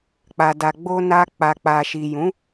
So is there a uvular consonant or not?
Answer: no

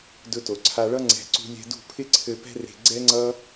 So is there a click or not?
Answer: yes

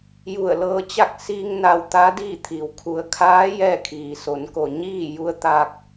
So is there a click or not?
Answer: no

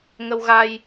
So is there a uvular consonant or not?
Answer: no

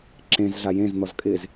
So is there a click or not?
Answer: yes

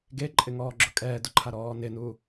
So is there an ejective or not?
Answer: yes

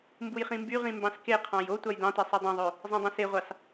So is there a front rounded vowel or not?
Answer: yes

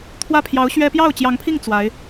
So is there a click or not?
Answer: no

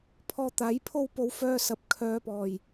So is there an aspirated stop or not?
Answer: yes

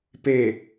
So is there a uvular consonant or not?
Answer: no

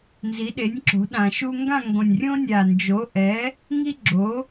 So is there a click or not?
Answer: yes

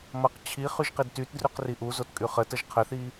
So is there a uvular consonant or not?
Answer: yes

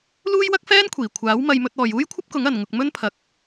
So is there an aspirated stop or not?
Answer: yes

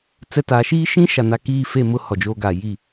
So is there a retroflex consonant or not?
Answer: no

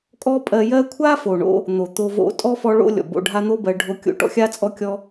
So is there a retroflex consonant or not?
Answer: yes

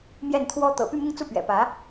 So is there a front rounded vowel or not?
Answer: yes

